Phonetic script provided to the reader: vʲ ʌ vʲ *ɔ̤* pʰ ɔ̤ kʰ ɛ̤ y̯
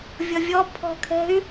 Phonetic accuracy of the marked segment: incorrect: ɔ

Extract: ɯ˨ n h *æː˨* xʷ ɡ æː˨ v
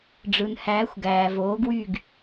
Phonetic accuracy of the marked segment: incorrect: æː˨˥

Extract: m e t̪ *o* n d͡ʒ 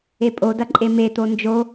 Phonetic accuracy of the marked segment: correct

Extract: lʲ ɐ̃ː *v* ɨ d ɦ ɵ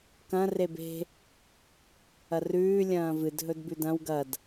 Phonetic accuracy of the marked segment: correct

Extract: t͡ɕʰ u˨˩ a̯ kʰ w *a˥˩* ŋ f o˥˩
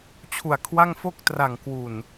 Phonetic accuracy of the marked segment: correct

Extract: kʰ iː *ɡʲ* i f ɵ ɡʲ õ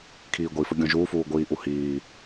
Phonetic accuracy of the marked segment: incorrect: ɡʷ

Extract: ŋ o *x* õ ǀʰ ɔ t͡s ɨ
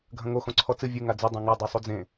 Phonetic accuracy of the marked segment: correct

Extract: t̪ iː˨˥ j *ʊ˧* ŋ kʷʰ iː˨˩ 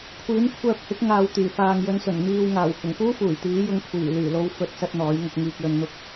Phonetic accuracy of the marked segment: correct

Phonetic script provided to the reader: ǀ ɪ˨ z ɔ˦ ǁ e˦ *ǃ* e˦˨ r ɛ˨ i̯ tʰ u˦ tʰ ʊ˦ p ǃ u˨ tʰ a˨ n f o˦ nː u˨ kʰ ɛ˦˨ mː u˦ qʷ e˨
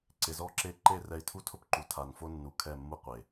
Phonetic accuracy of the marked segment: correct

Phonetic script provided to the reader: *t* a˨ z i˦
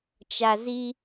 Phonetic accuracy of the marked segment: incorrect: t͡ʃ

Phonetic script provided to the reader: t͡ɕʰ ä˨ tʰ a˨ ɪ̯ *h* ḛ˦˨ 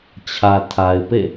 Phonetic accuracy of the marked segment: incorrect: p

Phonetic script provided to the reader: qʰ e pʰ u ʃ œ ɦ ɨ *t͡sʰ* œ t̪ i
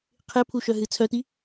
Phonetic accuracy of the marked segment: correct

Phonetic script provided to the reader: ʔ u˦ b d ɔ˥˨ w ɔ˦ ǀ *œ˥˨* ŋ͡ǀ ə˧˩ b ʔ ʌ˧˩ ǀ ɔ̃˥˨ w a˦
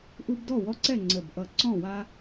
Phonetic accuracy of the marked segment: incorrect: ɛ˥˨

